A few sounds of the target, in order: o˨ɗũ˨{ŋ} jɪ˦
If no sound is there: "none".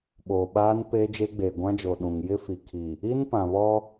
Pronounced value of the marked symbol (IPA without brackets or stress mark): ŋ